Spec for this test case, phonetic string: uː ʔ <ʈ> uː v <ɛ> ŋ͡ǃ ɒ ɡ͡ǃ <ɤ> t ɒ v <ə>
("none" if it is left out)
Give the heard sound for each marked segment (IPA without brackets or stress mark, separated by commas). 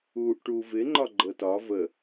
ʈ, ɪ, ɤ, ə